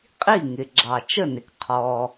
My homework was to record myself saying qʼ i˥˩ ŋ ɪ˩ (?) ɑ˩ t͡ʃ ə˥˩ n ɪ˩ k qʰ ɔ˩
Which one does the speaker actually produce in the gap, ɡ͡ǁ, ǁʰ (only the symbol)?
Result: ɡ͡ǁ